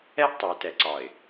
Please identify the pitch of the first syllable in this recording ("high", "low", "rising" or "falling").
high